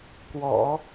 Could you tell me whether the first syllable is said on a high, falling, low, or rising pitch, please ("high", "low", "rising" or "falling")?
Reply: low